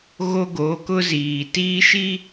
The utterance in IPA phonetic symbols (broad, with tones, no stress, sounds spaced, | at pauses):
ɣ o˦ ɡ o˨˦ k ʊ˦ z iː˨ t iː˦ ʃ i˦